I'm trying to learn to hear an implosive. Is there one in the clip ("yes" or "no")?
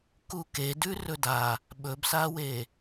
yes